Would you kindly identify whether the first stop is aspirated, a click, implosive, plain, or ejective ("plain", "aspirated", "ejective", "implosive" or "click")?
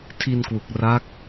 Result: aspirated